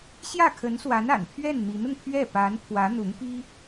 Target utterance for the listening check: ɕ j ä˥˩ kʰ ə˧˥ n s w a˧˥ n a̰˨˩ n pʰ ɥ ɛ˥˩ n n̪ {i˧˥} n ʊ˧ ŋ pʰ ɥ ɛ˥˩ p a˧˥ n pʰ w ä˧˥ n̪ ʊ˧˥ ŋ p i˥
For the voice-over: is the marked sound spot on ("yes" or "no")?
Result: yes